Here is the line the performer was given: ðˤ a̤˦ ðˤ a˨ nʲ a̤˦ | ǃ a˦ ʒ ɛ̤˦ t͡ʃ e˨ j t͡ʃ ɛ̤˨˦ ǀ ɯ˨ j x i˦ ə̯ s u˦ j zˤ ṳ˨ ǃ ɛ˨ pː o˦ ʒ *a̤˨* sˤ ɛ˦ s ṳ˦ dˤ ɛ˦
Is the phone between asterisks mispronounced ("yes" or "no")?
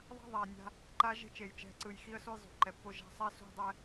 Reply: yes